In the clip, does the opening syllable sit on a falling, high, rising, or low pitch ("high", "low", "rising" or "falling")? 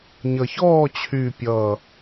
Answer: low